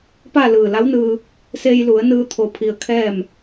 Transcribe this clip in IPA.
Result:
p a˥˨ l ɯː˧˩ l a˧˥ w n ɯː˧ | s e˧ j l u˩˧ ə̯ n ɯː˧ t̪ʰ o˧ pʰ i˧ ə̯ kʰ ɛː˥˨ m

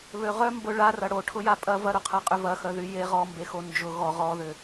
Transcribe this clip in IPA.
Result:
β ø ʁ œ m b ʊ ɭ a r ɐ ɽ o ʈʰ ʊ j a pʼ ɐ v ɐ ɾ ʊ qʰ ɐ qʼ ʏ v ɐ x œ ð y j e ʁ ɔ m b e x o n d͡ʒ ʊ ɣ ɔ ʁ ɔ ð ʏ

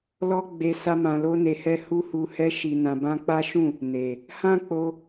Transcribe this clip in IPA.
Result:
l ɔ˦ ɡ͡b e˧ s a˦ m ã˧ l o˦ n e˧ h ɛ˦ h u˦ h u˧ h ɛ˦ ʃ i˧ n ã˧ b ã˦ k͡p a˦ ʃ ũ˦˨ | n e˨ | h ã˦ k͡p o˧

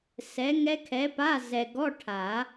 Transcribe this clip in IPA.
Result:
s ɛ˨˥ ŋ ɛ˦˥ kʰ ɛ˨˥ p a˧˥˧ z ɛ˨ ɡ ɔ˧˥˧ ʈʰ a˨˩˦

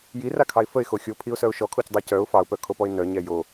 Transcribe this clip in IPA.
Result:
j i r a kʰ ɑ ɪ̯ f ə ɪ̯ x o xʲ o pʰ i ʊ̯ s œ ʊ̯ ʃ ɔ kʰ o c dˤ a c œ ʊ̯ f ɑ ʊ̯ p œ kʰ o p ɔ ɪ̯ n œ ɲ ɛ j o

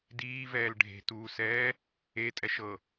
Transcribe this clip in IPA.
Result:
d iː v ɛː l ɖʱ e̤ t uː s ɛː | e tʼ ɛ ʃ ɤ

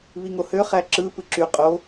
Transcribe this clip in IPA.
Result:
β i ŋ o h ø χ æ ǁ ɯ p ɯ ǁ y qʼ o

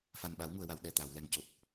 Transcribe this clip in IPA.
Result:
f a˨˩ n ɓ a˨˩˦ w ŋ u˨˩˨ ə̯ w a˨˩˨ w ɗ ɛ˨˩ t̪ a˨˩˨ w l ɛ˨˩ ŋ c o˨˩ t̚

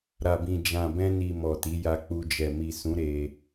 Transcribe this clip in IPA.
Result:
ɾ a˨ b ĩ˨ d͡ʒ ã˨ b ɛ̃˧ n i˨ m ɔ˨ t i˨˦ j a˧ k͡p u˧ d͡ʒ ɛ˨ m i˨ s ũ˨˦ ɾ e˧

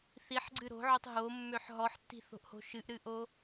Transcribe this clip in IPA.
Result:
θ i ħ ɡ͡ǀ ɨ ɾ o̤ ʕ o tˤ ɦ o mː ø ħ ɦ ɔ ħ tː i̤ θ o̤ ʔ h o̤ ʃ ɨ ʔ ɾ ɨ ʔ o

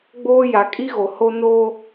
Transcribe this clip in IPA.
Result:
ɡ͡b oː˦ j a˨ kʼ i˦ ɣ o˨ h o˦ n oː˦

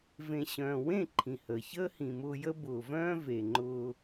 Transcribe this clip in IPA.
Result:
v ẽ˨ ɕ œ̃ː˨ w ẽ˦˨ ǃʰ ĩ˨ h əː˨ ç əː˦ h ĩ˨ m ʊː˧ j ə˦ b ʊː˨ v œ̃ː˦ v e˨ ŋ͡ǃ ʊː˧

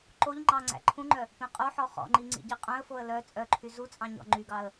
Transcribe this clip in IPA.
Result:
ǃ o ʎ ŋ͡ǃ ɑ ŋ͡ǀ æ̰ ǃʰ ũ ŋ͡ǃ œ | p ẽ qʼ o ħ ɔ χ ɔ̰ ŋ͡ǃ i ŋ͡ǀ ḭ ɟ i qʼ œ̃ ə̯ f o ə̯ l œ t͡sʼ œ ǃʰ y z u t͡sʼ ɑ̃ ɲ ɔ̰ ŋ͡ǃ y ɡ ɑ ə̯

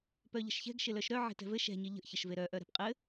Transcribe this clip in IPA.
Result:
p œ ʎ ə̤ ʃ ç ɛ̤ ɡ ʃ ɪ l œ ʃ ɾ œ ʕ e̤ t ɛ̤ v ɘ ʃ ɛ̤ ɲ ɪ ʎ ə̤ ʔ ç ə ʃ v e ɾ œ ʔ œ ɾ ɛ̤ p qʼ ɘ

